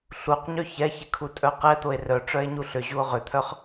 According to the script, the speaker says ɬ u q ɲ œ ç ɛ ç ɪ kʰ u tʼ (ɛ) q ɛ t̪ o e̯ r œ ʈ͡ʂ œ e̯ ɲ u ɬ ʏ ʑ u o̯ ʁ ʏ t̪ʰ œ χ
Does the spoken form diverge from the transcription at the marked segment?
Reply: yes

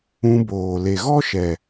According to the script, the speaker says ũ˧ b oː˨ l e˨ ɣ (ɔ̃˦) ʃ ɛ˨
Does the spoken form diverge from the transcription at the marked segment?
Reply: yes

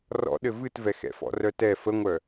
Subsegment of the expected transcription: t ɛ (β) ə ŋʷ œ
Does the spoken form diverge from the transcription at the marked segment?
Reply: yes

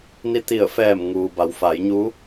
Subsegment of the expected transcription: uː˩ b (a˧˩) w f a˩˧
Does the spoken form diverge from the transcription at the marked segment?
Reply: yes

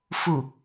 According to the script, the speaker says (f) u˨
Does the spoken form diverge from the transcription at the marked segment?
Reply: no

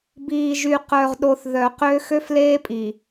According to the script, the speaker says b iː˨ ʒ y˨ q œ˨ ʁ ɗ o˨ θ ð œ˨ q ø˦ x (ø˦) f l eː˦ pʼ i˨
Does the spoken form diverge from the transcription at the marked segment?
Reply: no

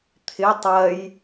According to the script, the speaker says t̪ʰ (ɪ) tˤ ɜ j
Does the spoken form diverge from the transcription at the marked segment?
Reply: no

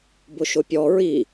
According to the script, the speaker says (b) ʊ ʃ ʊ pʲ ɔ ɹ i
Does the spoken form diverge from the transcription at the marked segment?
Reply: no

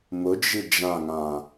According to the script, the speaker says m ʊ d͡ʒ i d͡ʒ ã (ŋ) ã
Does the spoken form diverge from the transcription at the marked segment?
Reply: no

